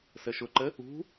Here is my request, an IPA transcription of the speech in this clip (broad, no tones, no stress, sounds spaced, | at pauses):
s ə ʃ ʊ ǃ ə | ṳ